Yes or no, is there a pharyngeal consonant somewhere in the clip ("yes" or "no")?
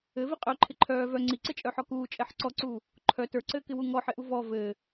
yes